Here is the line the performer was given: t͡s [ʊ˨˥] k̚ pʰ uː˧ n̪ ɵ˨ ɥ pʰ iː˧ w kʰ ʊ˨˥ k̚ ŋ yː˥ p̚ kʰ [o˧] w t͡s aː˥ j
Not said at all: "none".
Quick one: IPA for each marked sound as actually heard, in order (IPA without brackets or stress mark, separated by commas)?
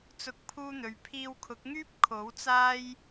ʊ˨˥, o˨˥